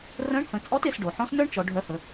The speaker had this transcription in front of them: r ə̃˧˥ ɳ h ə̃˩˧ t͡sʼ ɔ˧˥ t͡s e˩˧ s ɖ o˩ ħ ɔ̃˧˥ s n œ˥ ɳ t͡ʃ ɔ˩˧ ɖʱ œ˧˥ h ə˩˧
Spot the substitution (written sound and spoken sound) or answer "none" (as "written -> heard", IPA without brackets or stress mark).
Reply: t͡s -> t